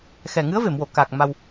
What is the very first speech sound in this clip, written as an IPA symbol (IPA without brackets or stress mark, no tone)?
x